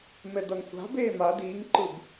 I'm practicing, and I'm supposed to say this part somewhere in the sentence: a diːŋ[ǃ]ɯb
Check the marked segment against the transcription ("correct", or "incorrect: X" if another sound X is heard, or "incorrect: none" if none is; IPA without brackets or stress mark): correct